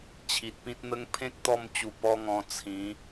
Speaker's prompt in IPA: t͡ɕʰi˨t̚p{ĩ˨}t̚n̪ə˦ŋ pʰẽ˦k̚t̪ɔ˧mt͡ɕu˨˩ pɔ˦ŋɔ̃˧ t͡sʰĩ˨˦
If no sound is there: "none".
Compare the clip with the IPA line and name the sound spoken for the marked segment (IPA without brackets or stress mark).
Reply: ĩ˦